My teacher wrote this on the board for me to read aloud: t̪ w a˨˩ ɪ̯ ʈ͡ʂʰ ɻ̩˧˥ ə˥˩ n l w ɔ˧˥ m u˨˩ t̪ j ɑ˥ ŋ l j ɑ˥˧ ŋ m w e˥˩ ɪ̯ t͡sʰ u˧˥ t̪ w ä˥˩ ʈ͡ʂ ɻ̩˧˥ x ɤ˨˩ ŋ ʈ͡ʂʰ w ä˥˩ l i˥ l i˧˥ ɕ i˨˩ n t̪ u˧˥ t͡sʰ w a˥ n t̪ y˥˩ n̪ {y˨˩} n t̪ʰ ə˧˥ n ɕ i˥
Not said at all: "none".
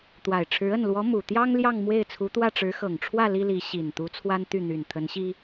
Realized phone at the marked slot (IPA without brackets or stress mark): y˨˩